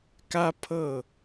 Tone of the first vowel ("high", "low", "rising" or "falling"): high